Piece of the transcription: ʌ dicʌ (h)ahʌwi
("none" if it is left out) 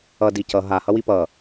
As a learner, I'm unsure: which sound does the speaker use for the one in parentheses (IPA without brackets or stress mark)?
ɦ